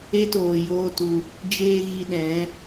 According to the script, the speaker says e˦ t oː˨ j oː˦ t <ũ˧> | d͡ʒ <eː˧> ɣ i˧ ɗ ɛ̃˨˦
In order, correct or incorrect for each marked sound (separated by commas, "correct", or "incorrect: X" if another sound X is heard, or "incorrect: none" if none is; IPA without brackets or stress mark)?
incorrect: u˧, correct